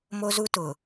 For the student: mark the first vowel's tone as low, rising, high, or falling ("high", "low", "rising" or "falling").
high